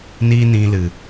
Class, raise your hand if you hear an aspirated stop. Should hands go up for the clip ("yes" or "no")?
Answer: no